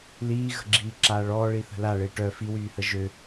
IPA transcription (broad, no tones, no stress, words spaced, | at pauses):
liːɣə̤ ɡ͡ǁiːǁaːɭɔː ɭiθə̤la ɭeʈœ fiwyːhə ʒø